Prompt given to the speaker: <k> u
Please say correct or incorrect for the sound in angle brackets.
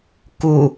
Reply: correct